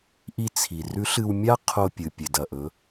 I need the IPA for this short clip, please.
ʔ i˧ t͡sʰ i˩ r ʉ˧˥ ɬ ɨ˧ w mʲ a˥ qʰ o˧ pʲ ɨ˩ pʲ e˩ d ɐ˩ ʔ ɵ˩˧

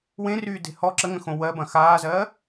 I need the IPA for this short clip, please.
w ẽ r yː d e̤ h ɔ ǁ ə ŋ ə̃ x õ w ɜ b ɐ̃ x aː z ɜ

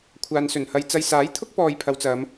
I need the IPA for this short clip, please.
kʷʰ aː˨ n s ɵ˨˩ n h ɐ˧ j t͡s ɐ˧ j s aː˨˥ j t̪ʰ ʊ˥ k̚ p ɔː˧ j pʰ ɐ˨˧ w t͡s ɐ˨˧ m

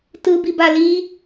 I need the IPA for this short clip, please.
t ɯ b i b a l i

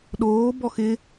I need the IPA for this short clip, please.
ɗ oː b ɔ x ɪ

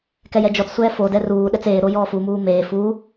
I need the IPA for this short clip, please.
k ɛ j ɛ d͡ʒ ɔ t͡s sʷ ɛː f o d ɛ r uː ɗ ɛ t͡s eː ɾ o j ɔː f u m uː m eː f u

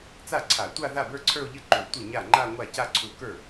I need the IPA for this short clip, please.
t͡s a˥˩ ǀʰ a˧˩˧ tʷ a˥˧ ð a˥˩ b ə˞˥˧ ǀʰ ə˞˥˧ o̯ ʎ ɘ˥˧ ǃ u˧˩˧ tʷ ɘ˥˩ ɲ a˥˩ ŋ͡ǃ a˥˧ ŋʷ a˥˩ c a˥˩ ǀʰ u˧˩˧ k ə˞˥˩

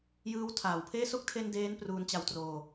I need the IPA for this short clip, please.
j ɯː˦˥ w tʰ aː˨˩ w pʰ eː˥˩ s o˦˥ k̚ tʰ e˧ n d eː˦˥ n p r uː˧ n t͡ɕ a˧ w t r oː˧

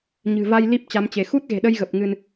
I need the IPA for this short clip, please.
ɲ ɨ̤˨˩ v a˧ j l i˦˥ p̚ t͡ɕ a˨˦ m t͡ɕ e˧˩ x u˦˥ t̚ ɣ e̤˨˩ ɗ ə˧ j ɣ ə˨˩ p̚ ŋ ɨ˧ n

